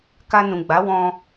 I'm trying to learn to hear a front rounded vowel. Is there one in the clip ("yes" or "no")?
no